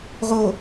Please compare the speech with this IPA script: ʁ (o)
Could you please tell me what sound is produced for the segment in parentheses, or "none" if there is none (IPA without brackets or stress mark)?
o